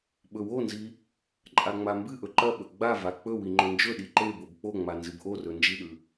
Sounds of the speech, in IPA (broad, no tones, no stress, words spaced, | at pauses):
ɓɵwonzi | ǃʼaŋ͡mambɨʔɵ ǃɐɓɵ ɡ͡bava k͡pɵ wiŋ͡ǃɵnd͡ʒɵɗi ǃe bobk͡poŋ͡ma nzɨbʔorɵ nd͡ʒiɗʉ